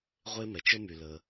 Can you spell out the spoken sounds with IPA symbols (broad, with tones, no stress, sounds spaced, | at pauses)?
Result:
ʁʷ e˥ m ɛ˩ t͡ʃ ə˥ m y˩ l ə˩